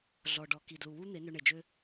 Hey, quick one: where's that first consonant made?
tongue tip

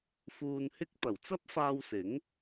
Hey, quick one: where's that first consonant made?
lips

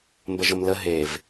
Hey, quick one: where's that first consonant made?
lips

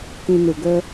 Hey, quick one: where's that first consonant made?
velum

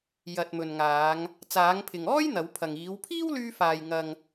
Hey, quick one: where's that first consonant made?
palate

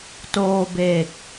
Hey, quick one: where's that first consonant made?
tongue tip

